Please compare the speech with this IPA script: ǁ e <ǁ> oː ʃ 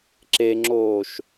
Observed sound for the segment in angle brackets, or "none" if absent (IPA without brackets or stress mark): ŋ͡ǁ